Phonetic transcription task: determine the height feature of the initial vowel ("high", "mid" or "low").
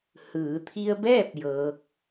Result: high